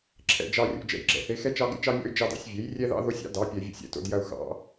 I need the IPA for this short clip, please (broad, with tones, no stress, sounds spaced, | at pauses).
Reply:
ǁʰ ɛ̰˨˩ d͡ʒ ɑ˧ rʲ o̰˧ d͡ʒ ɛ̰˧ j ɡ͡ǁ ɛ̰˧ θ e˨˥ x ɛ˥ t͡ʃ ɑ˥ ɡ ḛ˥ t͡ʃ ɑ˥ mʲ ɔ̰˥ y̯ d͡ʒ ɑ˥˧ d ɑ̰˨˥ sʲ vʲ e˨˥ j rʲ ɛ˥ ð ɑ̰˥ ð o˥ sʲ ɑ̰˥ d ɑ˨˥ pʲ ɛ˧ vʲ ɛ̰˥˧ sʲ ɛ̰˥˧ t o̰˥˧ d j ɐ˧ u̯ x ɑ̰˨˥